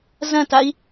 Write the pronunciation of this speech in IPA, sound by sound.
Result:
zɐ̃tai̯

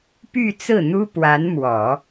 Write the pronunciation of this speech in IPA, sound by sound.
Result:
py˥˧ t͡sɹ̩˥˩n̪u˥ pwa˧˥nmwɔ˨˩˦

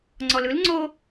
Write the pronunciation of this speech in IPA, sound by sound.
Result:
ŋ͡ǀɔlɯl ŋ͡ǀo

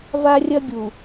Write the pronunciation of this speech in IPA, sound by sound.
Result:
va˦rʲɐ˦ɡʲu˨

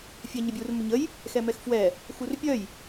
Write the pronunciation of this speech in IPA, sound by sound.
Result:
fʲɛɲəbʲur məɲəj | xɛmɛxfwɛ | xurpʲœj

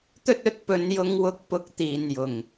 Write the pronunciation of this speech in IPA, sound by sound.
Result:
t̪ɵ˥t̚ɵ˧t̚pɵ˨˧n jʊ˧ŋwʊ˧k̚pʊ˨˥k̚ t̪iː˨njʊ˨˩ŋ

